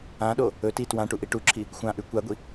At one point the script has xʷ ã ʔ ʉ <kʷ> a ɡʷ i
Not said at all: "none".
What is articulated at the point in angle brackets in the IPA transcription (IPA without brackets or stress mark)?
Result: kʷ